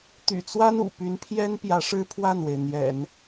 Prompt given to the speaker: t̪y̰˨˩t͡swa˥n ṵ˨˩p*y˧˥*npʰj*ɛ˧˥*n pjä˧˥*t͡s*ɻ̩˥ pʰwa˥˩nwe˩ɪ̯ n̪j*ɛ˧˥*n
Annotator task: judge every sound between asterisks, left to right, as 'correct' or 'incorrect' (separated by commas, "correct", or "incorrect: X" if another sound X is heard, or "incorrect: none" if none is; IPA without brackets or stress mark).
correct, incorrect: ɛ˥, incorrect: ʂ, incorrect: ɛ̰˨˩˦